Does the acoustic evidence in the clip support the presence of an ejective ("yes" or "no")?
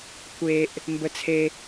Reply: no